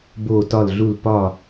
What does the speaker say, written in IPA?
b oː˥˧ t ɒ˥˧ l ɮ u˥˧ l p ɒ˥˧

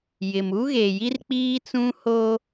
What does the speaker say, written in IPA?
j ɪ˨ m u˦ ɣ e˨ j i˦ r k͡p iː˦ t͡s ũ˦ h o˦

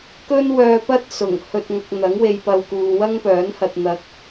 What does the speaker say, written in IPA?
k ɵ˥ n w œː˧ p ɐ˥ t̚ s ʊ˨˩ ŋ h ɵ˨ t̚ ŋ ɐ˨ k̚ n̪ ɐ˨˥ ŋ w e˧ j p ɐ˧ w k uː˨ w ɐ˥ ŋ p œː˨˥ n h ɐ˧ t̚ n̪ ɐ˧ k̚

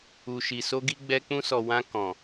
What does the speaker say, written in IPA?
u˨ ʃ i˨ s o˧ ɡ i˧ ɡ͡b ɛ˧ k͡p ũ˧ s ɔ˨ w ã˧ k ɔ̃˨

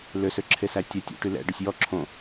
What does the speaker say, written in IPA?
l ø s ø ǁʰ e s æ tʲ œ tʲ ṵ ʈ y l ɛ̰ ɖ o sʲ j ɔ ǁʰ õ

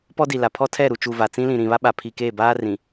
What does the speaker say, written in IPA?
p ɔ˦ d i˨ l a˨ pʰ ɔ˦ tʰ ɛ˦˨ ɾ u˨ t͡ʃ u˨ v a˨ t͡s ĩ˦ l ĩ˨ ɾ ĩ˨ β a˦ ɓ a˨ pʰ i˨ k eː˦˨ b aː˦ r ĩ˨

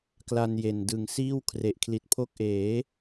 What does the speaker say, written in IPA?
k l a˧ n j e˨˩ n d ɯ˨˩ ŋ s iː˥˩ w kʰ r e˨˩ ʔ kʰ l i˨˩ t̚ pʰ o˦˥ k̚ ʔ eː˩˦

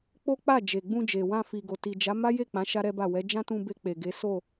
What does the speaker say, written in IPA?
k͡p o˦ k͡p a˦˨ d͡ʒ e˨ ɡ͡b ũ˧ d͡ʒ e˨ w ã˧ f i˨ ɡ o˨ t i˨ d͡ʒ a˨˦ m a˦ j e˦˨ k͡p ã˨˦ ʃ a˦ ɾ ɛ˦ b a˦˨ w ɛ˨˦ d͡ʒ ã˦ t ũ˧ b e˧ k͡p e˨ ɡ e˨˦ s o˦˨

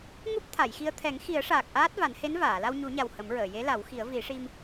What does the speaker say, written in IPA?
ŋ u˦˥ p̚ t̪ʰ a˨˩˨ j x i˧ ə̯ t̪ʰ ɛ˨˩˦ ŋ x i˨˩˦ ə̯ ʂ aː˨˩ k̚ ʔ aː˦˥ t̚ v a˨˩˦ n h e˧˥ n v aː˨˩˨ l a˧ w ɲ u˨˩˦ ɲ a˨˩ w h ə˨˩˦ m ɹ əː˨˩˨ j e˧˥ l a˨˩˦ w x i˨˩˦ ə̯ v i˨˩˦ ʂ i˧ m

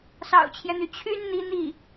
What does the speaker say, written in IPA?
s ɑ̰˨˩ ʊ̯ t͡ɕʰ j ɛ˦ n̪ y˩ t͡ɕʰ y˥ n n̪ i˧˥ n̪ i˥˩

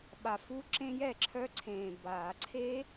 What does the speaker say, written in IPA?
ɓ a˨˩ f u˦˥ ǁ ẽ˦˥ j ɛ˨˩ ǁʰ œ˦˥ ǀʰ ẽː˨˩ b a˨˩˦ ǀʰ e˦˥

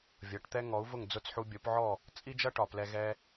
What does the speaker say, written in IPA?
vʲ ʌ˩˥ ʈ t̪ ɛ˥ ŋ ɔ˩˥ u̯ v ʊ˥˩ ŋ d͡z ʊ˥˩ t͡s ħ u˧ bʲ o˩˥ p ʕ ɔ˥˩ | t͡sʼ i˥ d͡ʒ ʌ˥ ʈ ɒ˩ p l ɛ˧ ɣ ɛ˧

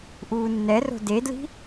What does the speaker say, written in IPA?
ʔ uː nː ɛ r o̤ d e d l i̤

